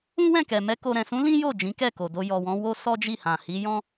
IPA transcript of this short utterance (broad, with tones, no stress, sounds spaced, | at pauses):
ũ˦ w ɛ̃˦˨ k ɛ˨ m ɛ˧ k o˨ ɾ ɛ̃˨ s ũ˨˦ l ĩ˦ j o˦˨ d͡ʒ ĩ˨˦ k ɛ˦˨ k o˨ d o˧ j ɔ˨ w ɔ̃˨˦ w o˦ s ɔ˦ d͡ʒ i˦˨ h ã˨ h i˨˦ j ɔ̃˦